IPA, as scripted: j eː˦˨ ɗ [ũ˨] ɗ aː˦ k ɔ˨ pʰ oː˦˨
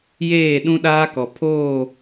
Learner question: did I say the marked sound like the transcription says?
no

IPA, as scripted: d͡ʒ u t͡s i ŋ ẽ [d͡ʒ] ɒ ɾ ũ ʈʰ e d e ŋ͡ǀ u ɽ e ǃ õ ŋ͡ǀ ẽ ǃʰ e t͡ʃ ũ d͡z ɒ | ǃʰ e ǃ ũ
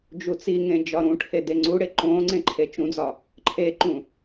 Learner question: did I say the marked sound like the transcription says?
yes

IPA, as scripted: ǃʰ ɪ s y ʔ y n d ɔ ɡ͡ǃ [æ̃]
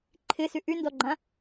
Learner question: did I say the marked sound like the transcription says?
no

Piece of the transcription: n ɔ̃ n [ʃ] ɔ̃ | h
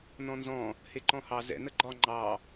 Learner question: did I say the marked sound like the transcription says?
no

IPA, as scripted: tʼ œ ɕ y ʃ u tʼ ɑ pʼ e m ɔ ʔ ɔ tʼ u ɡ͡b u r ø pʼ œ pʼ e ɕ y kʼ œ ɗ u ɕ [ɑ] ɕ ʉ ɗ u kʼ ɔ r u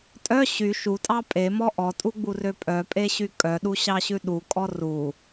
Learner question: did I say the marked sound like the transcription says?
yes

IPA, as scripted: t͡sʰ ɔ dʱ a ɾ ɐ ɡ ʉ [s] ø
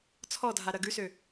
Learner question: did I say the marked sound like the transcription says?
yes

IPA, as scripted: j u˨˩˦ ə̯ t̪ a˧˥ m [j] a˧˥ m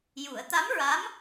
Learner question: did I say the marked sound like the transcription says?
no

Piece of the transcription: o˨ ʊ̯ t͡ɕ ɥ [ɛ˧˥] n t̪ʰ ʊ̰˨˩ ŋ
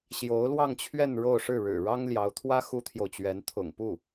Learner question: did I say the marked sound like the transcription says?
yes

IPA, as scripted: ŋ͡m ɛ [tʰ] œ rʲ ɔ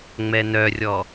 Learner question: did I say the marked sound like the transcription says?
no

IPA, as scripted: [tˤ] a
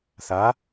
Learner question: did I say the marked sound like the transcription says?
no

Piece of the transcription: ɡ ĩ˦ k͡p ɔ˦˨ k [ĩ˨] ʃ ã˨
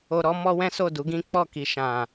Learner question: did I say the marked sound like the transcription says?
no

